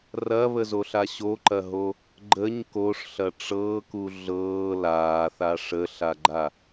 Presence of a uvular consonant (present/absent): absent